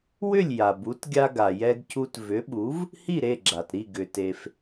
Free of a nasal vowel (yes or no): yes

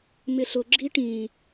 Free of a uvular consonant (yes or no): yes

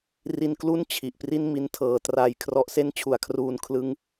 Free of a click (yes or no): yes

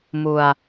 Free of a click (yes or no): yes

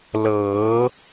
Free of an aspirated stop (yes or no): yes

